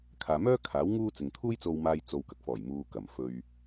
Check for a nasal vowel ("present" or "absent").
absent